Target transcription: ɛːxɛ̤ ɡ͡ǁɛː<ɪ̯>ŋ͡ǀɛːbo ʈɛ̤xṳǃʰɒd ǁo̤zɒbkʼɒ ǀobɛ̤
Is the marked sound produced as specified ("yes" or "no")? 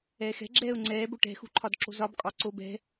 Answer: no